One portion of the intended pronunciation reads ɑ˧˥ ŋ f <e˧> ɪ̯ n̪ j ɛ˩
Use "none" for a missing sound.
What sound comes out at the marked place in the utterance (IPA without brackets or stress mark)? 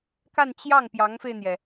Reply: e˧